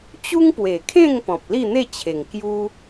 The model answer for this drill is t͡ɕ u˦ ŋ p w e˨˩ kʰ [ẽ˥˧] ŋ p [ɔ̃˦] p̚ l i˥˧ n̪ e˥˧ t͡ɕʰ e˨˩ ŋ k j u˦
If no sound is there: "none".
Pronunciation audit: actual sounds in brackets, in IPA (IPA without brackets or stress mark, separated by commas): ẽ˥˧, ɔ̃˨